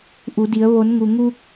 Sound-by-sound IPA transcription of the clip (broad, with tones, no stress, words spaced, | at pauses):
ʔu˩˧di˩˧ə̯ ʋo˩˧nŋu˩ŋu˧k̚